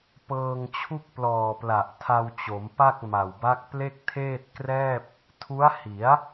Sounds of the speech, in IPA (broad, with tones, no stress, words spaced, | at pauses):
pɤː˧ŋt͡ɕʰu˥˩k̚ plɔː˨˩pla˨˩ʔ tʰa˧wt͡ɕo˩˦mpa˥˩k̚ ma˨˩wba˦˥k̚ ple˥˩k̚tʰeː˥˩t̚krɛː˥˩p̚ | tʰu˦˥a̯hi˩˦a̯